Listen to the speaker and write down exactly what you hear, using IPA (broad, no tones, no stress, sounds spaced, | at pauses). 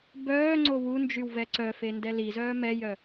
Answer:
b œː ŋ͡ǀ o w u n d͡ʒ y w v ɛ ǀ œ f e n d ɛ l i z œː m ɛ j œ